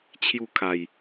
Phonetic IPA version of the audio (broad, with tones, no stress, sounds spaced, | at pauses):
t͡ɕʰ j u˥˧ kʰ a˨˩ j